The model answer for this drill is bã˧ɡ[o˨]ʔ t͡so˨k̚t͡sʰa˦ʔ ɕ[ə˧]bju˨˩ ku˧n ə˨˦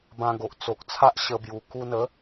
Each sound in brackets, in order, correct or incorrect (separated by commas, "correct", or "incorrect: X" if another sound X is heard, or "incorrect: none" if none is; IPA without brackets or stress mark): correct, correct